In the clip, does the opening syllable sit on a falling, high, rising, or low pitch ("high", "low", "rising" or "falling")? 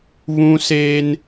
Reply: high